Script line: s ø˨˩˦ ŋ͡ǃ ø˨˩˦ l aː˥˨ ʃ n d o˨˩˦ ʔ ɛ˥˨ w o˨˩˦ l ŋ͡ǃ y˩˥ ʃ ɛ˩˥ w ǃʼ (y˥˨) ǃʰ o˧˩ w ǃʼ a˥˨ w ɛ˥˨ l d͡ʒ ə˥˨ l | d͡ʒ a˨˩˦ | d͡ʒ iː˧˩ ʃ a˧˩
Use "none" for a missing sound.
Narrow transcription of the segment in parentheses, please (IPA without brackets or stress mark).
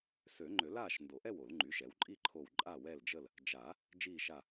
i˥˨